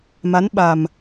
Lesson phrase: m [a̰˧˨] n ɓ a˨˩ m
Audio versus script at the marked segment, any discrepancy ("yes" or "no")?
yes